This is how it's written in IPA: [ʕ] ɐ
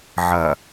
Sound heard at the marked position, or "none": ʕ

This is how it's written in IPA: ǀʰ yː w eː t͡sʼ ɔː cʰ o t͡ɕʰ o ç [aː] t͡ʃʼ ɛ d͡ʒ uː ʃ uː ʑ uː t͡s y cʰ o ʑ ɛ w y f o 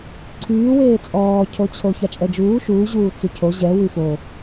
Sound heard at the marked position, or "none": a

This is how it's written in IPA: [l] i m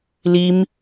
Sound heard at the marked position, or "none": l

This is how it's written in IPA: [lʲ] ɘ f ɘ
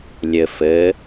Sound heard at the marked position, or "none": lʲ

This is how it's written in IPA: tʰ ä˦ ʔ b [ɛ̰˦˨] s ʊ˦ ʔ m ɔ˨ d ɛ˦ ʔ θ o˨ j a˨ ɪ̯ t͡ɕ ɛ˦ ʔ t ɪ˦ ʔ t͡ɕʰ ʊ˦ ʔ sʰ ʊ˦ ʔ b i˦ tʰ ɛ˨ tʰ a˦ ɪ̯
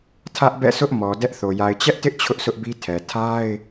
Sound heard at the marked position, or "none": ɛ̰˦˨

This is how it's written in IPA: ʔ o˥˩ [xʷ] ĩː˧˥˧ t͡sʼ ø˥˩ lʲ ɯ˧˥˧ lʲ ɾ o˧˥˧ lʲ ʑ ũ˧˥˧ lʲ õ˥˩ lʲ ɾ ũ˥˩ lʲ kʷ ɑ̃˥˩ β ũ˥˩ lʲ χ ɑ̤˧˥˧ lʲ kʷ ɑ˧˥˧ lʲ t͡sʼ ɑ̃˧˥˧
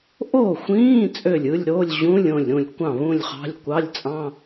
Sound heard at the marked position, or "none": xʷ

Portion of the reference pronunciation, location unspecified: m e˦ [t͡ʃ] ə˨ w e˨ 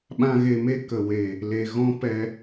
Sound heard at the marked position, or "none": k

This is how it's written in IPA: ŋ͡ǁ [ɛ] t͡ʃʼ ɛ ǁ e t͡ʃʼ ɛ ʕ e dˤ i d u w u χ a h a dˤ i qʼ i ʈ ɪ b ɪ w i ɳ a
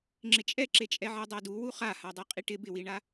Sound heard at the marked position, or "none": ɪ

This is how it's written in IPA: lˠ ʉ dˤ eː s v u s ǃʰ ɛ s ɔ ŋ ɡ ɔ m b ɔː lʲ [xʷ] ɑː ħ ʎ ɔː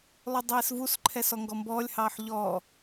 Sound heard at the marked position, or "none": h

